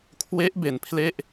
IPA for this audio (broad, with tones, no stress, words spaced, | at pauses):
kʰwe˦˥ʔ be˧npʰle˥˩ʔ